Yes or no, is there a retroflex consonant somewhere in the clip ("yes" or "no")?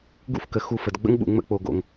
no